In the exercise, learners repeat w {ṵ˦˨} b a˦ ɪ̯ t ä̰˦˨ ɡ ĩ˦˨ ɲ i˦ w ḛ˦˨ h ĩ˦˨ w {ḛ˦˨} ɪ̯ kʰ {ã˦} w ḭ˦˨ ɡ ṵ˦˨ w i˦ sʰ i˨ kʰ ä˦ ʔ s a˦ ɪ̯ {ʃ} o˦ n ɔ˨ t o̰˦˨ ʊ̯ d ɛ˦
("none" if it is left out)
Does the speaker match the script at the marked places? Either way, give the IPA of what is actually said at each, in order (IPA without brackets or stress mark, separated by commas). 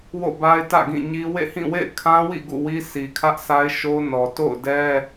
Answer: o̰˦˨, ḛ˦˨, ã˦, ʃ